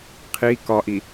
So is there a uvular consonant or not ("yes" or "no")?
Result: yes